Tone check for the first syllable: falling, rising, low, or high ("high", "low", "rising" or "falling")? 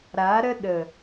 rising